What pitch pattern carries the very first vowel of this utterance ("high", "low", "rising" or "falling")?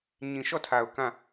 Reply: low